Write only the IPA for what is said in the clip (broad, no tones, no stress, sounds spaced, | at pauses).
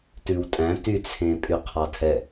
t ʉ w tʼ æ̃ t y t͡sʰ ẽ pʼ y qʰ ɑ tʰ ɛ